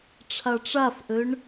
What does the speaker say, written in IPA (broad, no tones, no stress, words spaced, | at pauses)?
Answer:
ʈ͡ʂʰaʈ͡ʂafʔøɳ